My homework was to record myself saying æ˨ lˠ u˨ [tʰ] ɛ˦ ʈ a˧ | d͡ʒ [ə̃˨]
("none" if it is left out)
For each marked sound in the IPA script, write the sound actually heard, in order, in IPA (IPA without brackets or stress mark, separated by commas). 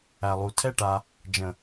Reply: tʰ, ə̃˨